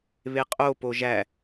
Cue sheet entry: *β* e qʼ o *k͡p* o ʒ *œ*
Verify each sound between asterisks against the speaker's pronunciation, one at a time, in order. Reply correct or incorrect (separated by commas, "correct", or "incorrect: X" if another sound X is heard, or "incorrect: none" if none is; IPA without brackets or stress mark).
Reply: correct, incorrect: p, incorrect: æ